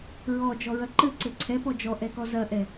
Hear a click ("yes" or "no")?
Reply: yes